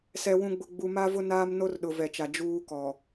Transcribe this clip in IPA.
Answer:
s ɛ˨ w ũ˨ ɡ͡b ʊ˨ ɡ͡b u˨ m a˦ v ʊ˦ n aː˦ m n o˦ r ɗ ʊ˨ v ɛ˨ t͡ʃ a˨ d͡ʒ uː˦ k ɔ˨

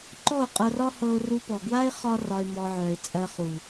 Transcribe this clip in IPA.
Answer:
ǃ ɔ˦˨ ʊ̯ qʼ ɤ˧ r ɒ˦ h ɤ˧ ʊ̯ r u˧ p ɔ˨ ɡ w a˦ ɪ̯ χ ɒ˦ r ɒ˧ ɪ̯ m ɔ˧ ʕ œ˨ ɪ̯ t͡sʼ ɜ˧ χ u˨

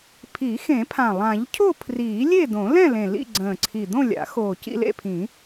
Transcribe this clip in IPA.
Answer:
pʰ i˨˩˦ x ẽ˨˩˦ pʰ ã˨˩ lˠ ã˨˩˦ ʎ cʰ o˥˨ pʰ r iː˨˩˦ lʲ e˥˨ d õ˨˩˦ l ɛ̃˥˨ l ẽ˨˩ l ḭ˥˨ ɡ͡ǀ ə̃ː˨˩ ǀʰ i˨˩ d̪ õ˥˨ lʲ a̰˨˩˦ x oː˨˩ c ḭ˥˨ l ḛ˥˨ pʰ ĩ˨˩˦

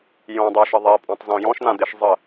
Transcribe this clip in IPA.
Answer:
j õ dˤ ø ʃ ə ðˤ e pʼ ɔ̃ tˤ z õ j ɔ̃ ʃ n̪ ã d̪ e ʃ zˤ ə

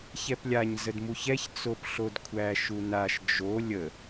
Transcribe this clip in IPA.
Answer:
ç ɛ p lʲ a ɲ z ə d m u ç ɛ ç t͡s o p ɬ o d kʷʰ æ ʃ u n a ʃ d͡ʒ o lʲ ə

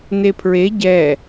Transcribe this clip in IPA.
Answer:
n e pʰ ɹ e ɟ ɛ

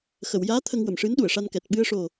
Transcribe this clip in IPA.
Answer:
x ə˨˩˨ w j aː˧˥ t̪ʰ ə˧ ŋ w ə˨˩˨ m ʂ ɨ˧˥ n ɗ u˨˩˨ ə̯ ʂ a˧ n k ɛ˨˩ t̚ ɓ ɨ˧ ə̯ ʂ o˨˩

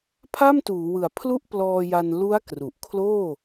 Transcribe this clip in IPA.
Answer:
pʰ a˥˩ m t uː˩˦ w ɯ˨˩ a̯ pʰ l u˥˩ ʔ p l ɔː˧ j a˧ n l u˦˥ a̯ k r u˨˩ ʔ kʰ l oː˥˩

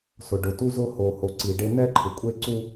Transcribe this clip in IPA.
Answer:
s ʊ˨ ɖ ʊ˨ t u˦ z ʊ˦ h o˨ h o˨ ǀ i˨ ɖ e˦ n̪ ɛ˦ ǃʰ ɪ˨ kʷʼ e˦ ǀ u˦

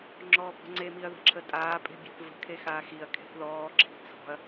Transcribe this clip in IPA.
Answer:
ŋ͡ǁ ɔː b ɔ̤ ŋ͡ǀ e m i ɐ̯ ð ə̤ ǁʰ ə tʼ aː pʼ e̤ bʲ e̤ θ v ə̤ kʰ e x aː x i ɐ̯ kʰ e̤ θ ð ɔː ǁʰ i̤ t͡sʰ ɔ̤ ɐ̯

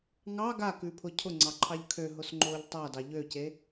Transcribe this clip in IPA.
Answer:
ŋ ɑ ɡ a k ʉ pʰ ʊ cʰ ʊ ŋ͡ǀ ɑ ǃʰ ɑ ʎ kʰ ø ɦ ʊ s ŋ͡ǃ oː ʎ tˤ a d ɑ ʎ ø c e

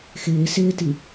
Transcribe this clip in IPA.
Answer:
x ɪː s ɪː t i

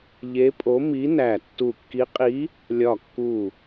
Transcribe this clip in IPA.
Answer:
ʎ e˧˥ pʼ o˧˥ m i˧˥ n æ˧˩ tː u˧˩ kː i˧˥ qʼ i˧˥ | lʲ ɒ˧˩ kː u˧˩

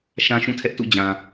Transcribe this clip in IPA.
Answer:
ʃ ã˦ ʃ ũ˦˨ tʰ ɛ˦ ʔ t ṵ˦˨ d͡ʑ ã˨

